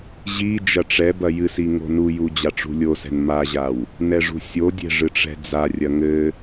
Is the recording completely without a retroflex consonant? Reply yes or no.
no